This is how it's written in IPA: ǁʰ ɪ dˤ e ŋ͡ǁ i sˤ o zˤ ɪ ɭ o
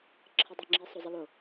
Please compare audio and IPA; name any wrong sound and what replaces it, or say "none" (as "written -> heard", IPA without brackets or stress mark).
ɭ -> l